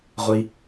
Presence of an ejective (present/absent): absent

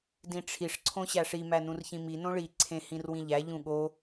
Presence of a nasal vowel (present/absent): present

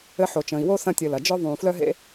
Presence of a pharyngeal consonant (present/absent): present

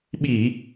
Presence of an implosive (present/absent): present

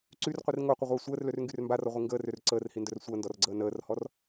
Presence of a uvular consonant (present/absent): present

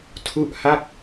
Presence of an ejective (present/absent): absent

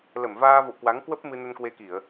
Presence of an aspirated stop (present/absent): absent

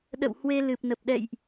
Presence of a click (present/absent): absent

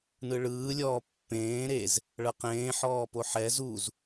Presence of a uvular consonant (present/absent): present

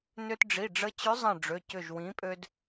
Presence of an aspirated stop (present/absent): absent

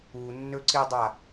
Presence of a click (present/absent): present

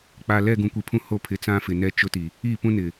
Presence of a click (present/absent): absent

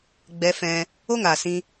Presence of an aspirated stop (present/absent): absent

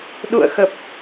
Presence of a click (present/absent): absent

